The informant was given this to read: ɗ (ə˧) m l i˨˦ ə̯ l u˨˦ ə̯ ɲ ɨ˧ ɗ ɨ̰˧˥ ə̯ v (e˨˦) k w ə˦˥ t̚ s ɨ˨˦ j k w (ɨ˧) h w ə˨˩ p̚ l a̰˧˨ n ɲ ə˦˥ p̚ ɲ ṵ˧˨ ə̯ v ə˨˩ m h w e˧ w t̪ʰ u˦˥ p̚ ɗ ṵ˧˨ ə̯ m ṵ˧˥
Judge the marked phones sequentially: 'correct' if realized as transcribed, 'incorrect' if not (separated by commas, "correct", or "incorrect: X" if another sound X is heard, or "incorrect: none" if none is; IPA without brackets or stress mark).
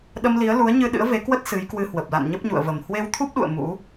correct, correct, correct